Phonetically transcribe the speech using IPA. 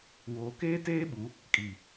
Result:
woː˨keː˦teː˦ɓu˨˦ | kʼi˨

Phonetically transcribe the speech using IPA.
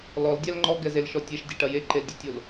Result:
lɔldʲal ŋ͡ǃɔɡɛzelʃɔ tʲɛʃdʲɛʈɐ jeǃeldʲotʲol

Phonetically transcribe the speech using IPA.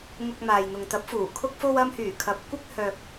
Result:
ŋʊ˧k̚maː˨jn̪ʊ˨ŋ t̪ɐ˨˥p̚fuː˨˩ kʰʊ˧k̚fo˧wɐ˧mhyː˨˩ kʰɐ˨˥p̚kʷɪ˥k̚ hœː˧k̚

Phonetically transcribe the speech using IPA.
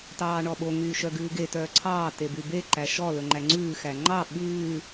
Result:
tɑːɳɔɓo ŋyːʃœɡʉːɡe tœːǀʰɑː tebybe ǃæʃɔ lɵŋ͡ǃæŋ͡ǀʉː xæŋ͡ǃɑ ɓʉː

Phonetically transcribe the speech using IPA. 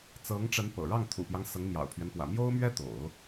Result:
t͡sɤ˧˥ŋʈ͡ʂə˧˥n pɤ̰˨˩ ɻɑ˥˩ŋt̪ʰṵ˨˩pjɑ˦ŋ sɤ˧˥ŋmjɑ̰˨˩ʊ̯pʰɥɛ˦npwä̰˨˩ mjo˥ʊ̯mɥɛ˥ t̪o̰˨˩˦ʊ̯

